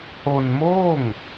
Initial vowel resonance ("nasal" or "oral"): oral